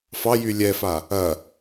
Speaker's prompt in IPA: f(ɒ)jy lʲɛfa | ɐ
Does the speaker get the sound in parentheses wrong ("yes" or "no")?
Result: yes